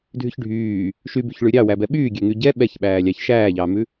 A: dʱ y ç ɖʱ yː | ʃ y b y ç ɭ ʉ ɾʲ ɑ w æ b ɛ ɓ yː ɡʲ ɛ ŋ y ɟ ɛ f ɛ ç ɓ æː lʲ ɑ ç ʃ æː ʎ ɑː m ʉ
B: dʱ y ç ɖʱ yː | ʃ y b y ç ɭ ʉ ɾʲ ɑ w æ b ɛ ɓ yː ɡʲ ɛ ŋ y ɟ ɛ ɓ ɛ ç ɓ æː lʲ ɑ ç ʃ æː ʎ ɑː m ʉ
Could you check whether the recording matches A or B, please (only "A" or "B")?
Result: B